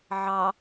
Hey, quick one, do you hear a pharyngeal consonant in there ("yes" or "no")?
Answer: yes